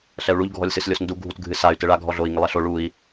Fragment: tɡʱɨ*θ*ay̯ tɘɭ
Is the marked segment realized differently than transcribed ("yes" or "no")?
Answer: yes